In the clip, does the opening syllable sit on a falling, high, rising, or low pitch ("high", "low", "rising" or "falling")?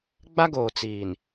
high